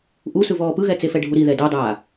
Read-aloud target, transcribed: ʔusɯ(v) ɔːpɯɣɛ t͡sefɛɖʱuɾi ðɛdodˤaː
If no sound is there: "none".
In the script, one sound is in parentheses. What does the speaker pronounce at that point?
v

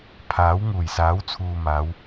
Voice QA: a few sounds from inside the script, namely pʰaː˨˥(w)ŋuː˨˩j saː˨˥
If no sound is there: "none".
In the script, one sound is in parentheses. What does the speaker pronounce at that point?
w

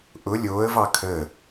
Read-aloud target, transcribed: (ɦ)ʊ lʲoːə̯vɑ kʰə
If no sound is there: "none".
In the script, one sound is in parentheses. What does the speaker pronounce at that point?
ʔ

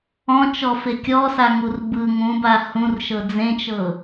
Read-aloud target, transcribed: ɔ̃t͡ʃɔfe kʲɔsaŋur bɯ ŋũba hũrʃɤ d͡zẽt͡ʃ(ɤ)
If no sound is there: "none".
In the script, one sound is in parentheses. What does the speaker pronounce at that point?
ɤ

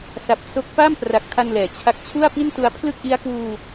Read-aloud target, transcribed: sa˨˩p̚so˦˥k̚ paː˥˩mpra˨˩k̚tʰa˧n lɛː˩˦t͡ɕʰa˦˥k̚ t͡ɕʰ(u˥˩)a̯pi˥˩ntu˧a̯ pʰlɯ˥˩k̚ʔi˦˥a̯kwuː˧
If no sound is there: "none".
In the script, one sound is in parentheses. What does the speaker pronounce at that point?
u˥˩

